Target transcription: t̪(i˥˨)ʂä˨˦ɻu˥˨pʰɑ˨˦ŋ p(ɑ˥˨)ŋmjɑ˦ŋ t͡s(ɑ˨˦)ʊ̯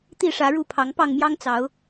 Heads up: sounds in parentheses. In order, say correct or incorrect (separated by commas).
correct, correct, correct